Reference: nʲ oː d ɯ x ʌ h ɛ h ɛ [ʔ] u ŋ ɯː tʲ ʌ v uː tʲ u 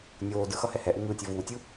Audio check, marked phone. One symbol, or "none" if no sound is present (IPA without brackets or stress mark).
ʔ